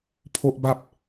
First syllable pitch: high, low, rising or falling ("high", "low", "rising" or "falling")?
high